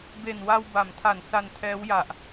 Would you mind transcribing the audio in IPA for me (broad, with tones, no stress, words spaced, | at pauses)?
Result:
be˨˩n wa˧wba˩˦mtʰa˩˦n sa˧ntʰɛː˦˥wja˨˩ʔ